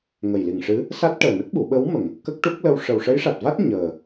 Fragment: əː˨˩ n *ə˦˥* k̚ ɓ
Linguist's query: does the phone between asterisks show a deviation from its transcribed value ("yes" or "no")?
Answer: no